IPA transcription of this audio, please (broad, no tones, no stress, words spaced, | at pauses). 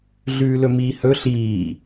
ɮʉːlɵmiːhɵ ɬiː